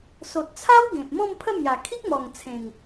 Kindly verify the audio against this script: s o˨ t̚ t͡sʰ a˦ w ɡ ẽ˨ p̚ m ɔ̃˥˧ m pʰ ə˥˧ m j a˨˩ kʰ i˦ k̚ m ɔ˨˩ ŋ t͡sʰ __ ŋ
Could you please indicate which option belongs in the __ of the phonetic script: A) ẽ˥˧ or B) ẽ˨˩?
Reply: B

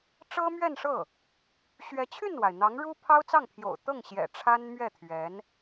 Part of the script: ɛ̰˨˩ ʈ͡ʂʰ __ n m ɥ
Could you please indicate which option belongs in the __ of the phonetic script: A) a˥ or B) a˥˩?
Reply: A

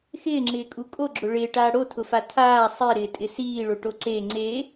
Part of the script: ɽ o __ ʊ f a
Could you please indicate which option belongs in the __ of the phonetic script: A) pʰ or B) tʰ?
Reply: B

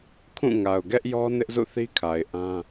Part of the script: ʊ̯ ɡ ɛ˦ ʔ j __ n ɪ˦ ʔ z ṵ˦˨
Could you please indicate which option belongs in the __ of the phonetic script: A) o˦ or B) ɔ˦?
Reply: B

